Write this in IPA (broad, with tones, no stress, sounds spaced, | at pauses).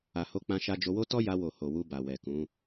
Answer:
a˨ h o˧ k͡p ã˧ ʃ a˧ d͡ʒ o˧ w o˦ t ɔ˦ j a˧ w o˨ h o˨ w u˧ b a˨ w ɛ˨ k ũ˨˦